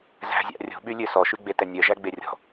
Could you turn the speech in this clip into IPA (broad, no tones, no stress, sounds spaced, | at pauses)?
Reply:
z æ̤ zʲ ɑ̰ rʲ o̤ ɓ y lʲ ø s ɔ ʃ y ɡ͡b e t ɛ nʲ œ ʒ æ ɡ͡b e rʲ ɔ̤